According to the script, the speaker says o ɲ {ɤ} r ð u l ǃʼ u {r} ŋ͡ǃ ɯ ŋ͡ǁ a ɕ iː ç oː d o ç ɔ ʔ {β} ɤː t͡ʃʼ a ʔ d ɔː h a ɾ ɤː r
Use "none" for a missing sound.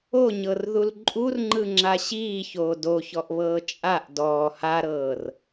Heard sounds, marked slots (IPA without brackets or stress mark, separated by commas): ɤ, r, β